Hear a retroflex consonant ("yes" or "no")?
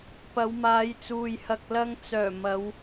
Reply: no